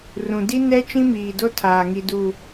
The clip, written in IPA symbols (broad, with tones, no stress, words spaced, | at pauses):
rũ˨di˦ nɛ˦ t͡ʃĩ˦miː˨do˦ tʰaː˨ŋi˨ du˨